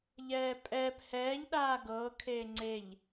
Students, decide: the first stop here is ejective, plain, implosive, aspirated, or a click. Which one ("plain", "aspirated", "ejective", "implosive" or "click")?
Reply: ejective